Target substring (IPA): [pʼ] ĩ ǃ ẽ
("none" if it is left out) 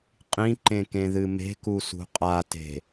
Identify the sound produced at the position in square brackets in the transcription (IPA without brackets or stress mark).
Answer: qʼ